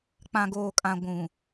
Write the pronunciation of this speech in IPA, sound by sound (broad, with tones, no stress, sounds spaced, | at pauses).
k͡p ã˨ ɡ oː˨ kʼ ã˨ ɡʷ ũ˨